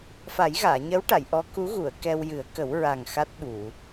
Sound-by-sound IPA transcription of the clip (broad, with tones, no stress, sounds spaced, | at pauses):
f a˨˩˦ j ɣ aː˨˩˨ ɲ ə˧˥ w ʈ a˨˩˨ j ʔ ɔ˧˥ k u˧˥ ɣ u˨˩˨ ə̯ k ɛ˧ w j ɨ˨˩˦ ə̯ k ə˨˩˦ w ɹ a˨˩ ŋ x a˦˥ t̚ ɓ u˨˩˨